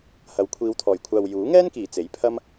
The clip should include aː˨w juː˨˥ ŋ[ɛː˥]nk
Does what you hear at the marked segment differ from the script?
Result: no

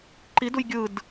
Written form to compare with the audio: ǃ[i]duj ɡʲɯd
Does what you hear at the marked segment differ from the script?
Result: no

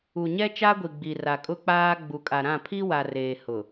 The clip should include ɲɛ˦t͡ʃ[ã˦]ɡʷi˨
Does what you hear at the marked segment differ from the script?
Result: yes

